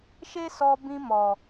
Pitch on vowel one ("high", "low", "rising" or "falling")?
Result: high